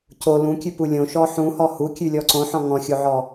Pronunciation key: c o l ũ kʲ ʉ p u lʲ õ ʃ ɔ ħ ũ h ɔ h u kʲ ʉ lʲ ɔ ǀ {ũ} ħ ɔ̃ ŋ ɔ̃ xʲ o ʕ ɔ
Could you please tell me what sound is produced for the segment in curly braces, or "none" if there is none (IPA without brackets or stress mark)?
õ